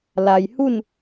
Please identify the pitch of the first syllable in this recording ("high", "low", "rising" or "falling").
low